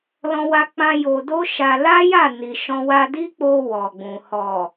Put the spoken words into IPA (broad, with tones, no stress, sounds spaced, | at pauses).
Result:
l ɔ̃˧ w a˧ k͡p ã˧ j o˧ d o˦ ʃ a˧ l a˦ j a˦˨ n i˨ ʃ ɔ̃˧ w a˧ d i˦ k͡p o˧ w ɔ˨ ɡ͡b ũ˨ h ɔ˨